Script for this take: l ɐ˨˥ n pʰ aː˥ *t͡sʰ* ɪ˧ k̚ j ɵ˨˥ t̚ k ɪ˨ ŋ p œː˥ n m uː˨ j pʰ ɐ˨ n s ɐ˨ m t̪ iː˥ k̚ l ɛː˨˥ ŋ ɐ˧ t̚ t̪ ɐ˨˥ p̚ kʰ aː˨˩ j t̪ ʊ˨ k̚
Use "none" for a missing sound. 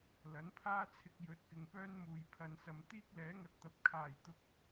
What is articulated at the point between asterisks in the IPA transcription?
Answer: t͡sʰ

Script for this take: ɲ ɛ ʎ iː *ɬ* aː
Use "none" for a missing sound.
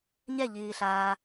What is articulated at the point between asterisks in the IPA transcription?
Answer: ɬ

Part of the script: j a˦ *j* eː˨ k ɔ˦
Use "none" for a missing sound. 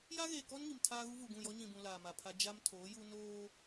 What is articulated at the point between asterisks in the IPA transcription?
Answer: ɣ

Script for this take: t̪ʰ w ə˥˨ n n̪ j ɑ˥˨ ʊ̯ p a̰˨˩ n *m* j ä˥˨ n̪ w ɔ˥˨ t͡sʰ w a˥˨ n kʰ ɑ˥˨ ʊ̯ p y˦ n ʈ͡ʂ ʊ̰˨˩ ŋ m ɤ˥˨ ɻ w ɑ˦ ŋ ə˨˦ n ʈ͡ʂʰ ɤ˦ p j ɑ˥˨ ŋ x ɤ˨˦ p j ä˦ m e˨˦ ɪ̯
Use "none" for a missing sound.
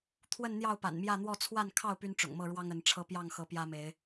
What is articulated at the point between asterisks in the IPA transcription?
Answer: m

